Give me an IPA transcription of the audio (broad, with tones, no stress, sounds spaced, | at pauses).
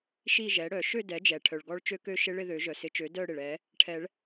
ʃ i˥˧ ʒ ɛ˩˥ ɽ œ˨˩˦ ʃ ø˥˧ d ɛ˩˥ d͡ʒ ɛ˩ ʈʰ œ˩ ɭ ɡ ɔ˦˥ ɭ t͡ʃ ø˦˥ k ø˥˧ ʃ ɪ˦˥ ɭ ɪ˥˧ ð ø˨˩˦ ʒ œ˩ s ɪ˨˩˦ t͡ʃ ø˩˥ d œ˥˧ ɽ ɪ˩ ɭ ɛ˨˩˦ | ʈʰ ɛ˨˩˦ ɭ